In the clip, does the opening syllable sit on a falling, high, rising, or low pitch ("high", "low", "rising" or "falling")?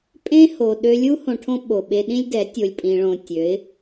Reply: high